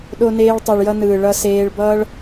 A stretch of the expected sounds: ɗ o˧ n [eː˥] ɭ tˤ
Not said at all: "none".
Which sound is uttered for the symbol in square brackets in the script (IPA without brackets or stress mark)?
eː˧